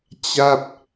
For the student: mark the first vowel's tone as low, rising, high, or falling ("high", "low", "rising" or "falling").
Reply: falling